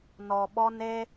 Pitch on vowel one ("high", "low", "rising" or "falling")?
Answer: low